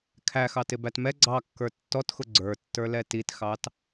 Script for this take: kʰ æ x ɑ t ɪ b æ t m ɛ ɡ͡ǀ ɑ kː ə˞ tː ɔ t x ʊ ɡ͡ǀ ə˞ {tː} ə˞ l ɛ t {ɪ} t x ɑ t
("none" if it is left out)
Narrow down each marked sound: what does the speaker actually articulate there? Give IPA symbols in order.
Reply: tː, i

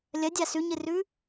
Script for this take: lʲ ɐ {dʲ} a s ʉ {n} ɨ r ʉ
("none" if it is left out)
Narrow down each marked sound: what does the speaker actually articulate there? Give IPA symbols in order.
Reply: dʲ, ɲ

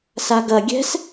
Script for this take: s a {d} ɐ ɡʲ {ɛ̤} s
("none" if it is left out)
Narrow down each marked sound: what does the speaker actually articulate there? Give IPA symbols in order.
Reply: ɡ, ɛ̤

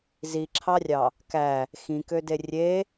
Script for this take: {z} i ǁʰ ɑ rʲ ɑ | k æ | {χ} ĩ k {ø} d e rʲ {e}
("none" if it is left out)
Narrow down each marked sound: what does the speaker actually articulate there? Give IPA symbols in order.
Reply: z, x, ø, e

